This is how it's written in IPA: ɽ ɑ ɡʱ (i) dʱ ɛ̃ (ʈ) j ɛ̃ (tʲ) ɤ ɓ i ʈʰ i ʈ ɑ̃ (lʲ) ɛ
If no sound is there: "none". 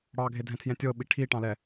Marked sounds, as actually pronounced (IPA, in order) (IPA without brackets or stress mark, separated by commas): e, tʰ, tʲ, l